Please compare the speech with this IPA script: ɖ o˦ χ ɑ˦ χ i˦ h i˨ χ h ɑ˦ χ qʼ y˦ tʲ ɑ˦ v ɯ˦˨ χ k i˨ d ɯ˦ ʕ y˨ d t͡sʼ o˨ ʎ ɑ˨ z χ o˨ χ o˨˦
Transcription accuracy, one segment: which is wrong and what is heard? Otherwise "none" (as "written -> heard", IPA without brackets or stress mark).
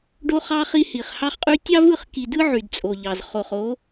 none